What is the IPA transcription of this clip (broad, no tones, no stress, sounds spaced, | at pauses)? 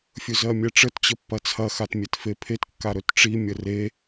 fʲ ɵ z ɜ mʲ ɛ ʈ͡ʂ ə t t͡ɕ ə pː ɐ t͡sʰ ɐ x a t mʲ e t f e pʰ e t kː a ɾ ɵ t ʈ͡ʂ i mʲ ə r e